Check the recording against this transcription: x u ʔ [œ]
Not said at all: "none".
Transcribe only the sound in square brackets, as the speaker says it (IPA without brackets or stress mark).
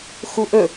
ɵ